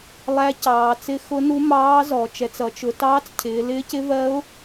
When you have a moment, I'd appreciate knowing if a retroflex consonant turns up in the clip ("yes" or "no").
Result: no